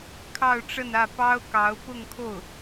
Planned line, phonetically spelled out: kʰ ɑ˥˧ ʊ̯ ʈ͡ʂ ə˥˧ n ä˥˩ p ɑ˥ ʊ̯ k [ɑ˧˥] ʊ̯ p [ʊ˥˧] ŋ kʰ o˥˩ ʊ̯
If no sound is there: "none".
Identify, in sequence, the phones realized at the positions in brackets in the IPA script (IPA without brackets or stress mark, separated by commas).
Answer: ɑ˧˥, ʊ˥˧